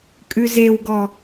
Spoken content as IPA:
kʼ ʉ z e w ɡ ɔ

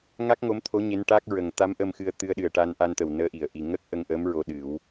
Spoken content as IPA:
ŋ a˦˥ k̚ ŋ o˧˥ m t̪ʰ o˧˥ ɲ e˧˥ n ʈ a˦˥ k̚ ɹ ə˨˩ ŋ t̪ a˧˥ m ʔ ə˧ m x ɨ˧ ə̯ t̪ ɨ˧ ə̯ ɗ ɨ˨˩ ə̯ ʈ a˧ n ʔ a˧ n t̪ ə˨˩ w n əː˧˥ ʔ i˨˩˨ ə̯ ʔ i˨˩ ŋ ə˦˥ k̚ ʔ ə˧ ŋ ʔ əː˧˥ m ɹ o˧ ɗ ɨ˨˩˦ w

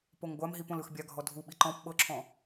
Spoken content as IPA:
p o ŋ ɡʷ a m ɦ i p õ l ɯ x bʲ a ɡʱ ɔ dʱ u ɓ i ǃ ɔ̃ p ɓ ɤ ǁʰ ɔ̃

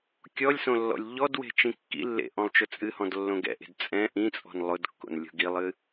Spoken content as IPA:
kʲ ɔ lʲ s õ lː ɔ̰ lʲ ʎ ɔ d w e̤ t͡ʃ ĩ kː ḭ lː ḛ ʔ ɔ̃ lˠ t͡ʃ ʊ t͡sʼ ɨ h ɔ̃ d lː õ ɡ ɛ̰ ʔ e̤ d t͡sʼ ɛ̃ ʔ ĩ t͡sʼ ɔ̤ n lˠ ʊ d kː o̰ n lʲ o̤ ɡ i lˠ ɨ

